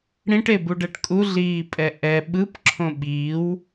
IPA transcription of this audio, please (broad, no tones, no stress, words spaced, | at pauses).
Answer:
ɽĩʈebuɖɛʈ kʼuɮiːpʼɛ ʔɛ ɓɯpǁʰõ ɓiːw